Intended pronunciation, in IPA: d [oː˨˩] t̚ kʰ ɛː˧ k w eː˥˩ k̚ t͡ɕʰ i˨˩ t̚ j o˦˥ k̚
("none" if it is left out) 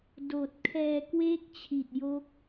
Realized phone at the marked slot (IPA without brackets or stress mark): oː˨˩